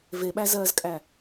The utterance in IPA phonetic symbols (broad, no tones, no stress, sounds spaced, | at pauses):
v e ɓ æ z ɜː z kʼ æ